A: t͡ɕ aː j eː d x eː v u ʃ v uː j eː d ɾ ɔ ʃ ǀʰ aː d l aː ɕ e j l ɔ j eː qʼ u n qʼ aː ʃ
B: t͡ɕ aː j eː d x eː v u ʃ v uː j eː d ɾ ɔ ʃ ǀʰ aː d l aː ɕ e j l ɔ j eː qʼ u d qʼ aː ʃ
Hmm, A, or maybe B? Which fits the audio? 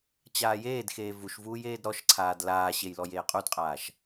B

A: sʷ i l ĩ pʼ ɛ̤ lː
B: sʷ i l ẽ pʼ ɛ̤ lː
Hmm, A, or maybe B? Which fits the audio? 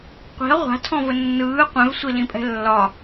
A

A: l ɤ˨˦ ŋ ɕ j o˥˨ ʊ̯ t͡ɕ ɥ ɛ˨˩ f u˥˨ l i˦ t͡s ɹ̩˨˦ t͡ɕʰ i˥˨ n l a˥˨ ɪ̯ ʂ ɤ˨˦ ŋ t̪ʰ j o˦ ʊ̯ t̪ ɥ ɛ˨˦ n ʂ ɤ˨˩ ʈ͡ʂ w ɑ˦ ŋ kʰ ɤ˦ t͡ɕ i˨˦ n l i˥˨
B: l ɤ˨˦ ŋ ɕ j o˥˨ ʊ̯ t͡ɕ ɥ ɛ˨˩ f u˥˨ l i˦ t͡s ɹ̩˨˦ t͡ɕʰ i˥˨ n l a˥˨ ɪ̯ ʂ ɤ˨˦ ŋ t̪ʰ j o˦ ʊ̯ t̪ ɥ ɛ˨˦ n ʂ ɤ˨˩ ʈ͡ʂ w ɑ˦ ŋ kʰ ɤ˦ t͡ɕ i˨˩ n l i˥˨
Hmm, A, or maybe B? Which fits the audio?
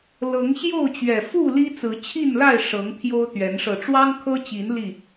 A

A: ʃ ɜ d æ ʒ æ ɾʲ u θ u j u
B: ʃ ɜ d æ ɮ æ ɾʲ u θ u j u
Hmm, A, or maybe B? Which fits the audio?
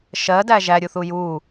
A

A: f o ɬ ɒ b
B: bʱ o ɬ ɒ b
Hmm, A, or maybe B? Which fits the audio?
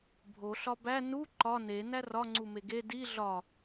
B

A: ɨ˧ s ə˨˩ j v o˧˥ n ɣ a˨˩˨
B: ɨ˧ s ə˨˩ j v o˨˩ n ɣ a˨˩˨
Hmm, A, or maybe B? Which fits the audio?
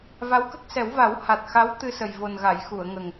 B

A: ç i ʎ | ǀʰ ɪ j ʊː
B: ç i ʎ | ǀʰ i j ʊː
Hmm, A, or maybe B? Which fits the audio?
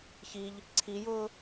B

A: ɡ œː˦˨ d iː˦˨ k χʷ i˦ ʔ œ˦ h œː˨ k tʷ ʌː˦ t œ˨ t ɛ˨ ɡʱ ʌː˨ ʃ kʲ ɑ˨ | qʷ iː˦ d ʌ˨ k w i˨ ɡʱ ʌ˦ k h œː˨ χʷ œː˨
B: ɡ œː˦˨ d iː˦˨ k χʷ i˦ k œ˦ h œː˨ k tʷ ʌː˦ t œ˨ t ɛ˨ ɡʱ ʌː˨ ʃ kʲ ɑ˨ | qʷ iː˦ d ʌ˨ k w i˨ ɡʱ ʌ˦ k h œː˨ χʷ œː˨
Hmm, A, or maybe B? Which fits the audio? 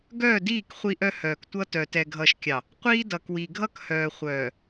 A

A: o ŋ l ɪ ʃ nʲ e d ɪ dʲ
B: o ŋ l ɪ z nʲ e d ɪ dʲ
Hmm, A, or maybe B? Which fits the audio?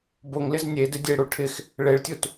B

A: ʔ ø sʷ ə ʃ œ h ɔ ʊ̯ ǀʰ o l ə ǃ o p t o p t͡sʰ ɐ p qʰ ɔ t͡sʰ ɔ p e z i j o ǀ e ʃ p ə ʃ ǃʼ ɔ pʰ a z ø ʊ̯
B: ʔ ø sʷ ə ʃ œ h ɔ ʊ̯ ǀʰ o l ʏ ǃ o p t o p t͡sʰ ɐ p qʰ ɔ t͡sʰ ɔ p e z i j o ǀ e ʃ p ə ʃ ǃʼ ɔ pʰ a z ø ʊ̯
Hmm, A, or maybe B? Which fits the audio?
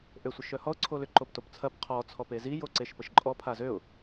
B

